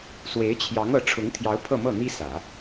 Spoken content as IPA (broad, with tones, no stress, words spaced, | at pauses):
swe˧˥ɪ̯t͡ɕʰjɑ˧˥ŋ ɤ˧˥ ʈ͡ʂʰʊ˧˥ŋt̪ʰjɑ˧˥ʊ̯ pʰɤ˥˧mɤ˥˩n̪i˥ sä˨˩˦